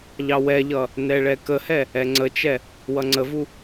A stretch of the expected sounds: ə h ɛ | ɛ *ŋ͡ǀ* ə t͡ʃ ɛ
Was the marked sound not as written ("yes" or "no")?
no